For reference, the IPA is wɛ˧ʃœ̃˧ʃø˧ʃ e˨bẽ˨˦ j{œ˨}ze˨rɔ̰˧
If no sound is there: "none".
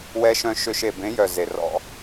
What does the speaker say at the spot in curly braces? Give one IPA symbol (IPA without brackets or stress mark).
œ˨